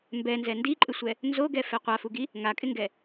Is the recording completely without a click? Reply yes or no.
no